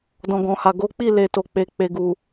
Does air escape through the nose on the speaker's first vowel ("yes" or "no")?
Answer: yes